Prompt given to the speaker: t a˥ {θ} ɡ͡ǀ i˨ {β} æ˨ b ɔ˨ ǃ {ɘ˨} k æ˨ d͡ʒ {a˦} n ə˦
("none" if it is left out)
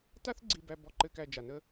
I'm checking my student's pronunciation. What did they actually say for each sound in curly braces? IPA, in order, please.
θ, b, ɘ˨, a˩

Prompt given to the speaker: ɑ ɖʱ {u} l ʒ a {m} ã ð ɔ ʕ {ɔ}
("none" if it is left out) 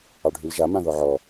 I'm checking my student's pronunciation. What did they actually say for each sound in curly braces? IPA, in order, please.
y, m, ɔ

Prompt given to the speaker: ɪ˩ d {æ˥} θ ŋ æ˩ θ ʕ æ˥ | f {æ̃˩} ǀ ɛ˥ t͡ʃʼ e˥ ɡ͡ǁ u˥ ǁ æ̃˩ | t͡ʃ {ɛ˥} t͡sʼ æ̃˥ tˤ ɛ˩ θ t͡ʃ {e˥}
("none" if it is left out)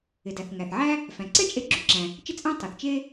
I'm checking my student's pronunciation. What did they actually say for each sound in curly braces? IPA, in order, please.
æ˩, æ̃˩, ɪ˥, e˥

